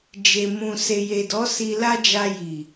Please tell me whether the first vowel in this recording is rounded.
no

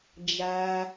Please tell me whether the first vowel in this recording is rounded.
no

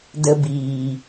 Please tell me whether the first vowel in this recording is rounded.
no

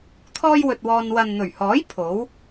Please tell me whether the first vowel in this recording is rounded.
yes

